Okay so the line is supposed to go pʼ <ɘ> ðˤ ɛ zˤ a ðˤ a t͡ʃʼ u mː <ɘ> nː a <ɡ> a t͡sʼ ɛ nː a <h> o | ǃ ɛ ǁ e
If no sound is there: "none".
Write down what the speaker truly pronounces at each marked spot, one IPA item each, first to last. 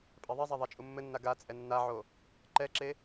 ɛ, ɘ, ɡ, ʕ

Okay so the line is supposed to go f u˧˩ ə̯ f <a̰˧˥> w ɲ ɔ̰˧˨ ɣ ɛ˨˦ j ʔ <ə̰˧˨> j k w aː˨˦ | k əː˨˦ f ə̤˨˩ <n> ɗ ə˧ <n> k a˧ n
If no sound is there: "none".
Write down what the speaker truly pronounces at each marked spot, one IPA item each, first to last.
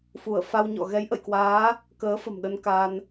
a˧, ə̰˧˨, m, n

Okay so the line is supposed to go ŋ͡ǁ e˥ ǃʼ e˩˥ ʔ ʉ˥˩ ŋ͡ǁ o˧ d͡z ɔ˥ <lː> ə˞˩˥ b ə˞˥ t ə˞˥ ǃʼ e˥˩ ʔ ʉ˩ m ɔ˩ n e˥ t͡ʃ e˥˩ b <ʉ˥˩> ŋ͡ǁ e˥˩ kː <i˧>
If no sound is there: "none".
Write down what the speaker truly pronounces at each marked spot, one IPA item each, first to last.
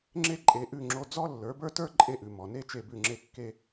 lː, ʉ˥˩, e˧

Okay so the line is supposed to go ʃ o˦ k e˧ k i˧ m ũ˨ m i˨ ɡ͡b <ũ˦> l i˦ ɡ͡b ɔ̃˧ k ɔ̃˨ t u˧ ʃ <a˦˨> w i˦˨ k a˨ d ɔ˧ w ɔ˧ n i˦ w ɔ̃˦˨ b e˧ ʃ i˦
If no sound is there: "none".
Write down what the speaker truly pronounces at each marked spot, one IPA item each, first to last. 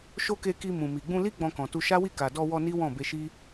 ũ˧, a˦

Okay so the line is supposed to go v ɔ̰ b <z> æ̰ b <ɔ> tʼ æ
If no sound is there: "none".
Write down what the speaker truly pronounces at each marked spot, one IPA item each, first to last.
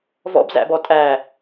z, ɔ

